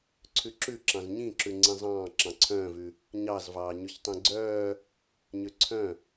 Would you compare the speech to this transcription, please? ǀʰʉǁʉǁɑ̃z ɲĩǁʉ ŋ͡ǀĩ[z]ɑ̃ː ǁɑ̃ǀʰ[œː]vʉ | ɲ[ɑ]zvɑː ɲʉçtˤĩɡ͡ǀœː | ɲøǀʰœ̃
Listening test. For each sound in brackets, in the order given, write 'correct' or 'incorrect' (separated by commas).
incorrect, incorrect, correct